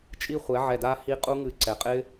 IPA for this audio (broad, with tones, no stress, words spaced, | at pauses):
t͡ʃʼi˦˥χʷɛ˩˥ʕɛ˧˩da˦˥ hi˦˥ qʼu˦˥ŋɨ˧˩ǀɛ˩˥qʼɪ˦˥